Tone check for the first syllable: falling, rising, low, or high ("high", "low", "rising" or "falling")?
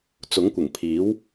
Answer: rising